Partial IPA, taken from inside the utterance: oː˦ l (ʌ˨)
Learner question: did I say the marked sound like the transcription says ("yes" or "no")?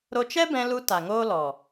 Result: no